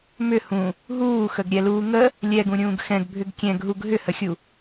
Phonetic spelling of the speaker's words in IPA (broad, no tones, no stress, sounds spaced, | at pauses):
m ʏ h ũ | ɦ uː x ə ɡ ɾʲ ɛ l uː ŋ ə | lʲ ɛ ɡ ũ ɾʲ ũː ɡ x ɛ̃ ɡ bʱ ʏ ɡ kʲ ɛ̃ ɡ ɦ u ɡ ɦ ʏ h ə xʲ u